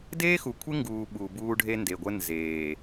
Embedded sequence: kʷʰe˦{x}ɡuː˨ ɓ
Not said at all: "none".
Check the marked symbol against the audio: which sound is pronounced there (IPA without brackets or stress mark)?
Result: ŋ